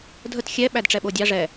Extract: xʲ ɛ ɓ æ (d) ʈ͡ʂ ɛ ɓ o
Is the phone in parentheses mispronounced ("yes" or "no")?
no